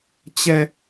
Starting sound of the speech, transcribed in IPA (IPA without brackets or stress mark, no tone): t͡ɕ